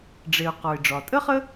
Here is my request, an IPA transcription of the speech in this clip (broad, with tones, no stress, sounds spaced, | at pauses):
ɖ͡ʐ e˩ ʊ̯ q ɔ˩ ɪ̯ ɖ͡ʐ ɒ˩ tʼ ə˥ χ ə˥